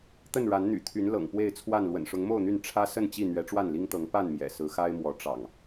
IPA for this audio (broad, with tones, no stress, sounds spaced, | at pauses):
t̪ ə˥˨ n ɻ a˨˦ n n̪ y̰˨˩ t̪ʰ y˨˦ n l ɤ̰˨˩ ŋ p w e˥˨ ɪ̯ t͡sʰ w a˥˨ n l w ə̰˨˩ n ʂ ʊ˨˦ ŋ m o˥˨ ʊ̯ n̪ y˥˨ n ʈ͡ʂʰ ä˦ s ə˥˨ n t͡ɕ i˥˨ n̪ ɥ ɛ˨˦ ʈ͡ʂ w a˥˨ n l i˦ ŋ t̪ ɤ˨˦ ŋ p a˥˨ n m j ɛ̰˨˩ s ɹ̩˨˦ x a˦ ɪ̯ m w ɔ˨˦ ʈ͡ʂ ɑ̰˨˩ ŋ